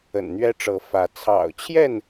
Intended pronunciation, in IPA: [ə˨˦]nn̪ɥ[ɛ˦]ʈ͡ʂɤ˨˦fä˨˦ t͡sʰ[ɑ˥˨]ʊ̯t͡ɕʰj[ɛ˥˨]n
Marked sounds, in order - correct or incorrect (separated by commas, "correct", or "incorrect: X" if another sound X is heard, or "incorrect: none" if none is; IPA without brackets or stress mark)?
incorrect: ə̰˨˩, correct, incorrect: ɑ̰˨˩, correct